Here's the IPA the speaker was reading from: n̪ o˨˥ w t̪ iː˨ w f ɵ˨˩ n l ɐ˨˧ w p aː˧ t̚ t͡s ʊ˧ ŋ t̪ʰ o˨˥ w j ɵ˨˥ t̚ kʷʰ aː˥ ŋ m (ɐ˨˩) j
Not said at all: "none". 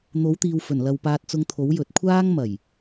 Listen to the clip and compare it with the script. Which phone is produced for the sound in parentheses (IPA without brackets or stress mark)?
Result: ɐ˨˩